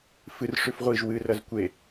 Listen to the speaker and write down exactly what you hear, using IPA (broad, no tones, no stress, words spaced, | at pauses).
fɨr ʂʉfʁʷiʒ wɨrɐz kʷe